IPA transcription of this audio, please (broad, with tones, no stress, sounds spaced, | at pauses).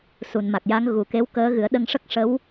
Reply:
s u˨˩˨ n m a˨˩ k̚ j a˧˥ ŋ ɣ u˨˩ k e˧˥ w k əː˧˥ ɣ ɨ˨˩˦ ə̯ ɗ ə˧ ŋ ʂ ə˦˥ k̚ ʂ ə˧˥ w